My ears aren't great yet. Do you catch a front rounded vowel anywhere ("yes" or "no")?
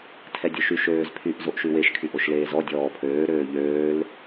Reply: yes